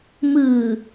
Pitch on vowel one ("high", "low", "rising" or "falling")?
low